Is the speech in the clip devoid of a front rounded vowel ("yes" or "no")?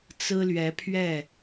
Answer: yes